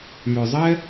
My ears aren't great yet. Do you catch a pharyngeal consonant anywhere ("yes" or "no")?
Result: no